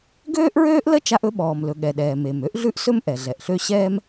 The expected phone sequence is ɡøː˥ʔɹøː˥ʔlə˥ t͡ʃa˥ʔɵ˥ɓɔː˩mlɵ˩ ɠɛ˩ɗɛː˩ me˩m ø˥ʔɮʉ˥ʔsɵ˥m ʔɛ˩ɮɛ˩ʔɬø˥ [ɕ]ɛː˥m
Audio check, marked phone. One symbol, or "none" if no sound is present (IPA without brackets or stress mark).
ɕ